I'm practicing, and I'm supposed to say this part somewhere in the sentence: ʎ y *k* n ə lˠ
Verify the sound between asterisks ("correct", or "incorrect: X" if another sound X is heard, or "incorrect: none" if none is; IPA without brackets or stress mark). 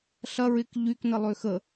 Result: correct